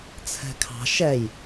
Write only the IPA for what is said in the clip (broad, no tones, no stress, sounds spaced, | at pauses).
t͡sʰ ɛ̤ kʰ ɑ̤ ʃ ɛ j